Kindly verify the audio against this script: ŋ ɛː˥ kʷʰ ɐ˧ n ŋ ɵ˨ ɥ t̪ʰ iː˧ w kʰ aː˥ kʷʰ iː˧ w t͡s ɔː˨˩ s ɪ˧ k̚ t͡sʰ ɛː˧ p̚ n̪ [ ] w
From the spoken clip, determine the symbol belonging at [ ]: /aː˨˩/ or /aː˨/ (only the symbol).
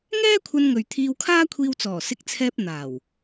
aː˨˩